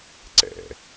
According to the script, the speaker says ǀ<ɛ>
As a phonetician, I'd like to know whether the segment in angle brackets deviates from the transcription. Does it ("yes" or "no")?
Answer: yes